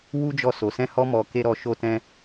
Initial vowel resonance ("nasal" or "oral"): oral